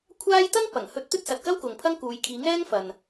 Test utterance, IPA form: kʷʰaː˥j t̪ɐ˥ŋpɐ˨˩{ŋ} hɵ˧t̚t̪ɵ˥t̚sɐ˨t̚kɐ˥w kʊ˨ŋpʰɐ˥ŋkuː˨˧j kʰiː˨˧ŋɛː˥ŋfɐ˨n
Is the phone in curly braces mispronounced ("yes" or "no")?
no